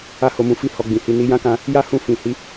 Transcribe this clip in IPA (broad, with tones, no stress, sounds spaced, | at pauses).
a˦ h o˧ m ũ˧ f i˦ h ɔ˧ ɡ͡b ĩ˨ h i˧ n i˧ j ã˦ k ã˧ | j a˦ h ũ˦˨ f ĩ˨ h i˨˦